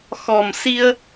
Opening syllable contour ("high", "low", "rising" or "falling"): low